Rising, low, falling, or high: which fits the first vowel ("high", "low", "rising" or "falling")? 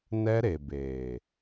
high